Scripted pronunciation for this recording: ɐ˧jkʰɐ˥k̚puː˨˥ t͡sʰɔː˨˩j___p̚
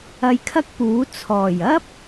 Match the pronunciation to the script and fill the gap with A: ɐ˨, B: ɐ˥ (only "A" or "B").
B